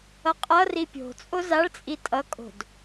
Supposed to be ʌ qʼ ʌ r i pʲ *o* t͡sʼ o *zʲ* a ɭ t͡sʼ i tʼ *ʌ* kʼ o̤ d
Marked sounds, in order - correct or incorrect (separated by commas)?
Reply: incorrect, incorrect, correct